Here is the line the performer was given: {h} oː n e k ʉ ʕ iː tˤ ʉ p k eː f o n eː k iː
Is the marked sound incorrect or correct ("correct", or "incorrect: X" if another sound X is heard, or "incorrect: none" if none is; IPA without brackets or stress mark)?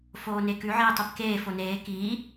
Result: incorrect: f